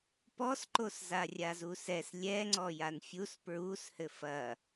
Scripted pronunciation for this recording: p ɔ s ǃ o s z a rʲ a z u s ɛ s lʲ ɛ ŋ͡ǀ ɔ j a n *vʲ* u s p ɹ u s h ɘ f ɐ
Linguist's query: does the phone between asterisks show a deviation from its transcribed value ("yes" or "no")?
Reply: yes